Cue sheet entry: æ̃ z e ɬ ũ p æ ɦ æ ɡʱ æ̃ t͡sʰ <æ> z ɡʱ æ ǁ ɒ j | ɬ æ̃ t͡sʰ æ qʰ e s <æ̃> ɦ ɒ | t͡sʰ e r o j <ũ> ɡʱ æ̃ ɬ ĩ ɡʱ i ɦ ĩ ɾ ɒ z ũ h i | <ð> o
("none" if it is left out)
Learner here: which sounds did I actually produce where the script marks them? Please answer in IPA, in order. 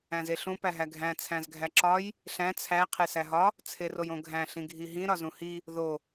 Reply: æ̃, æ, õ, ð

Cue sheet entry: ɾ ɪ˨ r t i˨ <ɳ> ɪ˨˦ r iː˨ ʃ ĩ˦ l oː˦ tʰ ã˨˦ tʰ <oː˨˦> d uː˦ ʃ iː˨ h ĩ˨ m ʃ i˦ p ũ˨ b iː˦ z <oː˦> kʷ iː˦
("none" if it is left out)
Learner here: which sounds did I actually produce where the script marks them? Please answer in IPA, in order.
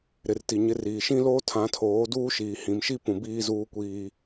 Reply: ɲ, oː˨˦, uː˦

